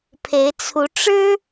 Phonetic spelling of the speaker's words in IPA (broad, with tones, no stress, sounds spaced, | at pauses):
pʰ e˧˥ ɪ̯ t͡sʰ u˧˥ ʈ͡ʂ ɻ̩˥